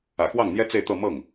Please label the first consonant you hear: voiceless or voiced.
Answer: voiceless